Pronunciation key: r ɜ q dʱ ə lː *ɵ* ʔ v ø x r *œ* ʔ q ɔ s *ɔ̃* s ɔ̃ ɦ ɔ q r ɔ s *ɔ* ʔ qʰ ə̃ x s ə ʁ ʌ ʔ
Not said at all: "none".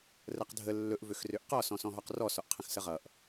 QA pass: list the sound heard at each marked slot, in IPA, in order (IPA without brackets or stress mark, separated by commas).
ɵ, ø, ɔ̃, ɔ